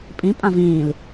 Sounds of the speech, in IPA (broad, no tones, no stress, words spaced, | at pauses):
pʼĩ pʼãvĩːl